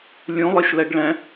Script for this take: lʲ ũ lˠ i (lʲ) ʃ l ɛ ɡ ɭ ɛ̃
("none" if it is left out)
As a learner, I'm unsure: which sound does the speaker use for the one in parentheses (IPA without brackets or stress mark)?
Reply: none